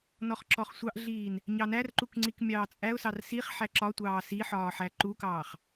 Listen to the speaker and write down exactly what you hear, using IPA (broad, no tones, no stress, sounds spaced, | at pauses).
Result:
n ɔ χ ǁ ɔ χ sʷ ɑ ʔ ɮ iː n | ɲ ɑ n æ r ǃ u k ŋ͡ǀ i k mʲ ɑː t͡sʼ æ ʊ̯ s ɑ r s i χ ħ æ ǁ ɒ tʷ ɑː s i ħ ɒː ħ æ ǃ u k ɑː χ